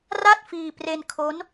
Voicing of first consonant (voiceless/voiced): voiced